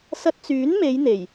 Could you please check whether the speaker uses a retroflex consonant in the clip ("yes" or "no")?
no